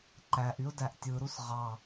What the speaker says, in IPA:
ǃ æ ʔ y ʊ̯ d æ ʔ tʲ ɯ ɾ u s ʁ ɑ

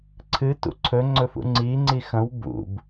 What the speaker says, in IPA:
ǀʰ ɨ t ṵ ǀʰ ɵ ŋ͡ǀ ɵ f ṵ ŋ͡ǀ i ŋ͡ǀ i x ɐ̃ w b ṵ b

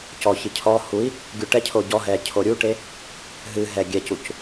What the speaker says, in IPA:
c ɔ ç ɨ cʰ ɔ h u i̯ | ɡʲ u ʈ ɛ cʰ o ɟ ɔ ɦ ɛ cʰ o ɾʲ u ʈ e | ɦ ɨ ɦ ɛ ɡʲ ɛ c u c

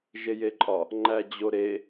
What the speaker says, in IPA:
ʒ e j e ǃʼ ɒ | ŋ͡ǃ æ d͡ʑ o ɾ e

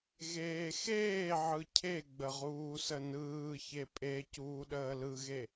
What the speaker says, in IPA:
ɣ eː x eː ʕ ɯ cʰ e ɡ͡b ə ʁ uː s ə n ɯː ç e pʼ e c uː ɗ əː l ɯ ɣ e

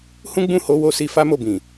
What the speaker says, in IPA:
h ũ˦ ɡ͡b ũ˦˨ h o˧ w o˦ s i˧ f a˦ m o˦˨ b ĩ˨

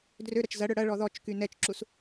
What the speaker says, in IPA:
d r ø ɾ ɐ t͡ʃ z ɐ ɽ œ ɽ ɐ ɭ ɔ ð ɔ t͡ʃ k y n ɛ t͡ʃ ǁ u s

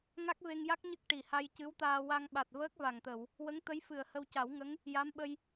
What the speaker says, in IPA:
ŋ a˦˥ k̚ v e˧ ŋ j a˦˥ k̚ ɲ ə˦˥ k̚ ʈ i˨˩ h a˧ j c ɨ˧˥ w t̪ aː˧ w a˧ ŋ ɓ a˨˩ t̚ v əː˦˥ k̚ v a˨˩ ŋ t̪ ə˨˩˨ w | w ə˧˥ ŋ t̪ ə˧˥ j f ɨ˨˩ ə̯ h ə˧ w c a˨˩˦ w ŋ ə˧˥ ŋ | j a˧˥ m ɓ ə˧ j

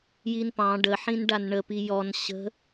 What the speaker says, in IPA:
j i n p ɑ̃ ɖ ə ħ ĩ n ɖ a n ɳ ə p i j ɔ n ɕ ə̤

